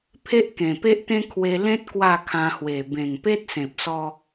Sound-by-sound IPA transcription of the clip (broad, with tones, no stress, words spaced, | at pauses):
pʰe˦ʔkẽ˨˩pe˦ʔt̪ẽ˦ kʰwe˧ lẽ˦t̚ kwa˥˧ kʰã˧hwe˨˩ bẽ˨˩ŋpe˦t̚sẽ˨p̚sɔ˧